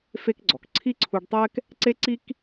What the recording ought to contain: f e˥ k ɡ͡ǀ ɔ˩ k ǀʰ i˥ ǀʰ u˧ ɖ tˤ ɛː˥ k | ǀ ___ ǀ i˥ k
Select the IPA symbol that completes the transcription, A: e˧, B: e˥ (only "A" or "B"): B